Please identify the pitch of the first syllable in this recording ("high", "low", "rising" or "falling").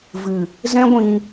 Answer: low